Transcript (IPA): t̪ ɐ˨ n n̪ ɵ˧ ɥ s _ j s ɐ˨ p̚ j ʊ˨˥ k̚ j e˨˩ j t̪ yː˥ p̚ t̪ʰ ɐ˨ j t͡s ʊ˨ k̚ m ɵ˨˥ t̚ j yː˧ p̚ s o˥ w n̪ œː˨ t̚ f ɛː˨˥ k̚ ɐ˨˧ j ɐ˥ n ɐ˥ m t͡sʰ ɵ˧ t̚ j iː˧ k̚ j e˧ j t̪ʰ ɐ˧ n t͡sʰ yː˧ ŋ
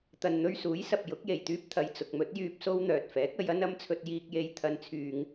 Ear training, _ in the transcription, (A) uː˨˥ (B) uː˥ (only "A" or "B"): A